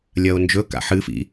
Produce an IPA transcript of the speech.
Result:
lʲ ɐ o̯ n d͡ʒ ɵ k a̰ ħ ɨ f ḭ

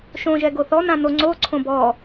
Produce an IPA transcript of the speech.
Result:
ʃ õ ʒ ɛ ɡ o θ ɔ n ã n o ŋ͡ǀ o ǀʰ õ b ɔ

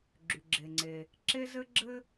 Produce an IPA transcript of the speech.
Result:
ɡ͡ǁ y˩ ɡ͡ǁ e˩ ŋ͡ǀ e˩ | ǁ e˥ z ɘ˥ ɡ͡ǁ ɘ˥

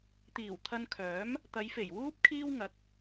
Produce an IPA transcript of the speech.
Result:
t̪ iː˨˩ w t̪ʰ ɐ˧ n kʰ œː˨˥ m | t̪ ɐ˨˧ j f e˨˩ j w uː˥ p̚ kʰ iː˥ w ŋ ɐ˨˥ k̚

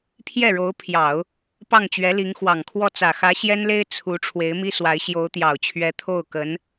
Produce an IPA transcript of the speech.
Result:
pʰ j ɛ˥˩ ɻ o˧˥ ʊ̯ pʰ j ɑ˨˩˦ ʊ̯ | p ɑ˥˩ ŋ t͡ɕ ɥ ɛ˧˥ l i˧˥ ŋ x w ɑ˨˩ ŋ kʰ w ɔ˥˩ t͡s ä˨˩ x ä˧˥ ɕ j ɛ˥ n l e˥ ɪ̯ t͡sʰ u˧˥ ʈ͡ʂʰ w e˧˥ ɪ̯ m i˥ s w a˧˥ ɪ̯ ɕ j o˧˥ ʊ̯ t̪ j ɑ˨˩ ʊ̯ t͡ɕʰ ɥ ɛ˧˥ t̪ʰ o˥˩ ʊ̯ k ə˧˥ n

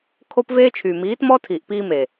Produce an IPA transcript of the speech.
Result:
kʰ o˦ p v eː˦ t͡ʃʰ yː˨ m iː˨˦ t m ɔ˦ tʰ iː˨ ʔ p iː˧ m e˨

